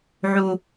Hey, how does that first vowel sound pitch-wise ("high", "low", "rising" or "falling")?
low